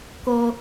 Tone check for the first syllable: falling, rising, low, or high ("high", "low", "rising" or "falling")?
high